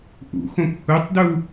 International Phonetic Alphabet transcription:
ʔ ṵ x õ k h u tˤ d u

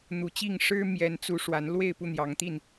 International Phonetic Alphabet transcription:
n̪ u˨˦ t͡ɕ i˥˨ ŋ ʂ ɻ̩˦ m j ɛ˨˦ n t͡s u˨˦ ʂ w a˨˦ n l w e˥˨ ɪ̯ p u˥˨ n̪ j ɑ˨˦ ŋ t̪ i˥˨ n

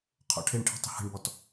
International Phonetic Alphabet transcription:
qʰ ɔ̰ ʈʰ e ɳ ʈʰ i̤ tˤ ə̤ h ə̤ ɳ b ɔ t

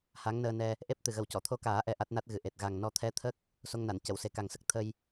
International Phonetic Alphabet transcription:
h a˧˥ ŋ n əː˧ n ɛ˧ | ʔ e˦˥ p̚ t̪ ɨ˨˩ ɣ ə˨˩ w c ɔ˨˩˨ t̪ʰ o˧ k aː˨˩˦ ʔ ɛ˧ ʔ a˦˥ t̚ n a˦˥ t̚ ɣ ɨ˨˩ ʔ e˨˩ t̚ ɣ a˨˩ ŋ n ɔ˧ t̪ʰ ɛ˧˥ t̪ʰ ə˦˥ k̚ | s o˧ ŋ n a˨˩˨ n c ə˨˩˨ w s e˨˩ k a˨˩ ŋ s ə˦˥ k̚ t̪ʰ ə˧ j

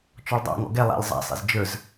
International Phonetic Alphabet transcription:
t͡ʃ ɔ ɭ dˤ a̰ ŋ ɔ̰ ɡ ɛ lˠ a̰ lʲ zˤ a̰ sˤ ḛ z d͡ʒ ə˞ z

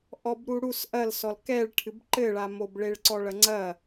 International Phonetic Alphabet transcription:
ʔ ɔ b ɾ u ɽ u s ʔ ɐ l s ɔ l k ɛ ɭ ʈʰ ɨ b ǃ ɘ ɭ a m o b ɭ e ɭ ǀ ɔ ɭ ɐ ŋ͡ǀ ɐ

